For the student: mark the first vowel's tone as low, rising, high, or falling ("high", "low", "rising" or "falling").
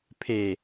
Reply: low